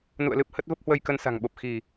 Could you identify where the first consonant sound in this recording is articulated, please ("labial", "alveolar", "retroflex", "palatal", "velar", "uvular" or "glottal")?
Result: alveolar